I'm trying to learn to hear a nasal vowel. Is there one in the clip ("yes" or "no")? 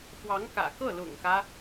no